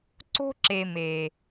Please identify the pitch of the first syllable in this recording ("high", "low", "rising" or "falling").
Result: high